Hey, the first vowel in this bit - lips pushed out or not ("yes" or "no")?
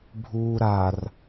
yes